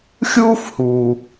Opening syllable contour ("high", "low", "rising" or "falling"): high